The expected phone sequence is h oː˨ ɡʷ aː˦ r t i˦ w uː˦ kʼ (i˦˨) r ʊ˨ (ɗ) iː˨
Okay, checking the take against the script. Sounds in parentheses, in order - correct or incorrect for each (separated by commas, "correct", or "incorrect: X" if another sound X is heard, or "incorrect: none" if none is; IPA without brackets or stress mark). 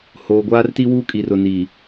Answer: incorrect: i˨, incorrect: n